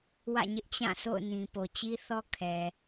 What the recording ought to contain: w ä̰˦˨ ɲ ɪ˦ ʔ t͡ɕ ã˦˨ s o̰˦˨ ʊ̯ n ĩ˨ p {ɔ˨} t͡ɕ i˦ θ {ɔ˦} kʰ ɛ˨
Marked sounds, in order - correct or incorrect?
incorrect, correct

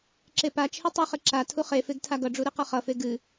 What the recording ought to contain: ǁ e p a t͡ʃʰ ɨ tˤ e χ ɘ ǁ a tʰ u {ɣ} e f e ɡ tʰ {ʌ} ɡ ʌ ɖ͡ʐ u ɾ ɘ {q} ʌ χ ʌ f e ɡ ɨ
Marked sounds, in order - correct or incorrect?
incorrect, incorrect, correct

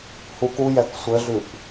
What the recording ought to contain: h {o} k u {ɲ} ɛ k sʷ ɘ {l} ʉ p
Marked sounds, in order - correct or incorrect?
incorrect, incorrect, incorrect

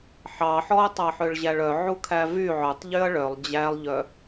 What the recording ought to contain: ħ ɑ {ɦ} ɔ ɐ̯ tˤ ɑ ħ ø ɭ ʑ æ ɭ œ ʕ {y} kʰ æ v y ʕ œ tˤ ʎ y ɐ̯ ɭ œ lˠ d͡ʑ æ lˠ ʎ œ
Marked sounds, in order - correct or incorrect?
incorrect, incorrect

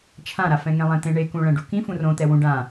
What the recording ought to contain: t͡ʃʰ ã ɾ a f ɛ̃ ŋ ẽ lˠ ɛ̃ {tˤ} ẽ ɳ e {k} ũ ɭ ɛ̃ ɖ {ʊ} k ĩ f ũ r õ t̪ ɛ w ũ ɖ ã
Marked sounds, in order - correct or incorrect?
incorrect, correct, incorrect

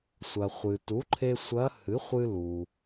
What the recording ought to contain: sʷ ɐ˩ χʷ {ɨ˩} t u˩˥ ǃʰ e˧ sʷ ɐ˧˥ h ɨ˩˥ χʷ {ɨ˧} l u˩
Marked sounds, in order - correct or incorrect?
correct, correct

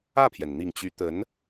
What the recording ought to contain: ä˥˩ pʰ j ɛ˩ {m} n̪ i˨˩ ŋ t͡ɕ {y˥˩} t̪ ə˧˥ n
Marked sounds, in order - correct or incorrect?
incorrect, incorrect

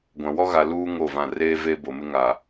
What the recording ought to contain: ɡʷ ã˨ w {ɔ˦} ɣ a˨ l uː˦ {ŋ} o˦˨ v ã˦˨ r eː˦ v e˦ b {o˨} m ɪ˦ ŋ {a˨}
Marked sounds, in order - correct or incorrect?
correct, correct, correct, correct

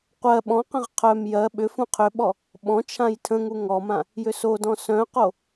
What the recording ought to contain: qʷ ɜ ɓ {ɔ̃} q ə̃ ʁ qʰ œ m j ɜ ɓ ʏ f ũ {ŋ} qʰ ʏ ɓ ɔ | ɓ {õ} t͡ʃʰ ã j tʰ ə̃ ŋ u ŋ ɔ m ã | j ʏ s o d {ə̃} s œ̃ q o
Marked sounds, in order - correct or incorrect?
correct, incorrect, incorrect, incorrect

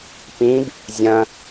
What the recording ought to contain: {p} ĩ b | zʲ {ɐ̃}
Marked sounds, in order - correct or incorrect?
correct, correct

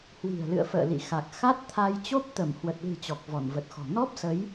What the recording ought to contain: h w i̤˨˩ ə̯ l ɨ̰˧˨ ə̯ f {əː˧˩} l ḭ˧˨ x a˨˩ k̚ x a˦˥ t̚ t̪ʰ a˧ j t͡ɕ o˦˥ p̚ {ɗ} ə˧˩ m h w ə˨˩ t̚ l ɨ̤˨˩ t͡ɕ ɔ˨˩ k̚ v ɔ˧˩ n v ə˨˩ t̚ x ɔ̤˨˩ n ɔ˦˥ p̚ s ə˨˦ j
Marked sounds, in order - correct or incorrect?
incorrect, incorrect

